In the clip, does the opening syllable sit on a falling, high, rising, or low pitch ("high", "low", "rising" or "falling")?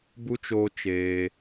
high